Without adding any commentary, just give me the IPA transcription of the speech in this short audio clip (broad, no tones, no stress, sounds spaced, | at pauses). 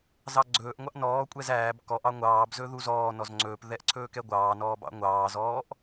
z ɑ ɡ͡ǀ ɵː ʔ ŋʷ ɑ ʔ n ɔː kʷʼ ɛ z æː b k ɔ ʔ ɑ ŋʷ ɑː b z ɵ ð u z ɔː n ɔ z ŋ͡ǀ ɵː p ð ɛ ʔ ǀʰ ɵː k ɛ ɡʷ ɑː n ɔː b ɑ̰ ŋʷ ɑː z ɔː ʔ